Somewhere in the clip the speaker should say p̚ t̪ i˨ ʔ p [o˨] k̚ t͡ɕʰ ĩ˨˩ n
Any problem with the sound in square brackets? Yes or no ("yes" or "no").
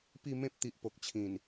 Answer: no